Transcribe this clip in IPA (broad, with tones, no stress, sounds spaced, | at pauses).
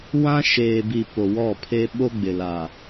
w ã˦ ʃ eː˨ b i˨ p o˨ w ɔ˦˨ pʰ e˦ ɓ o˦ ɡ͡b ɪ˨ l a˨